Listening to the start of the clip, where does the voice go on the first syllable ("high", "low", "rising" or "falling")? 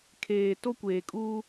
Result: low